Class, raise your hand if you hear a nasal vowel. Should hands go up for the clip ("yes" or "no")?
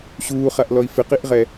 no